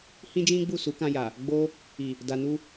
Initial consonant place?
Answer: glottal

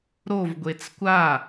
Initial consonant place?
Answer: alveolar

